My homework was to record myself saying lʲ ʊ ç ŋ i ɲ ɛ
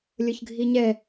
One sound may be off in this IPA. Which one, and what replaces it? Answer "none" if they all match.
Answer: ŋ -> ɡʱ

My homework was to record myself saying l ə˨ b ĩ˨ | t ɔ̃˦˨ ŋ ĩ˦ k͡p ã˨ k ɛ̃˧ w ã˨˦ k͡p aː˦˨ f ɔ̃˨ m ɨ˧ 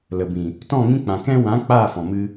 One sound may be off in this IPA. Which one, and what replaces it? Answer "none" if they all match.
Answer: none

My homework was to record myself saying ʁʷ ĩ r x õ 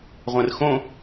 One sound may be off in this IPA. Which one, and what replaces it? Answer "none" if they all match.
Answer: ĩ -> ẽ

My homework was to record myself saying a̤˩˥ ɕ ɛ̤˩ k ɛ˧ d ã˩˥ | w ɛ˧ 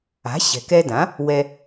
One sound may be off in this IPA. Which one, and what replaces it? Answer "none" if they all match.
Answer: none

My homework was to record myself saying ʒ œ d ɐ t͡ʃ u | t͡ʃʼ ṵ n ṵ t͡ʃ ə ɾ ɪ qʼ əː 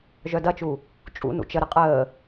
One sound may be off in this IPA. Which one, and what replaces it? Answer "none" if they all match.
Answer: none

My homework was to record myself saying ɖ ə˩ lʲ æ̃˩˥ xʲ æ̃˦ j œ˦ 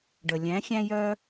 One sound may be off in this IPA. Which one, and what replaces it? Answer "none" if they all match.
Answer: none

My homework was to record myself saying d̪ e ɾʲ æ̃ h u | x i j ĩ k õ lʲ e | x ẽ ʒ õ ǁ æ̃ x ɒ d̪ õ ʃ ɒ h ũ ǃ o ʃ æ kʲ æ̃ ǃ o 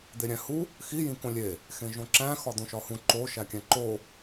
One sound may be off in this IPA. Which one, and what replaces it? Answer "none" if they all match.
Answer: none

